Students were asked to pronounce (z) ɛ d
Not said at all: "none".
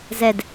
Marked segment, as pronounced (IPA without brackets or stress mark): z